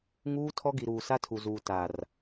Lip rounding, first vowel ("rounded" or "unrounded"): rounded